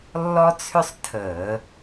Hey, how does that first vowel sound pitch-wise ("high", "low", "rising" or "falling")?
high